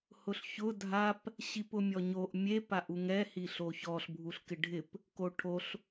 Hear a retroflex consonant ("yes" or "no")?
yes